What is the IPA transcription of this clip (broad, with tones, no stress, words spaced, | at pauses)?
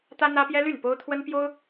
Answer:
t̪ä˥n̪ä˥pjɛ˥ ly˥˩n po˥ʊ̯t̪ʰwə˥n pjo˥ʊ̯